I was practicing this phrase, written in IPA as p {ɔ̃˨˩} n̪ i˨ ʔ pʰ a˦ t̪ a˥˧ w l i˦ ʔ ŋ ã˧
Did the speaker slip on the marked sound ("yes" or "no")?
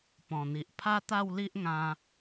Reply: no